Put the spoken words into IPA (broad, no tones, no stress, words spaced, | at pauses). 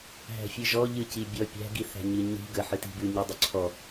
ɦæ̤fʲɨʒɔ ʎɨci bʲɔ pʲæ̤ɡi θæ̤ɲɨɲi̤ ɡə ħɨti̤bʉ ɲidˤʉǀʰɔ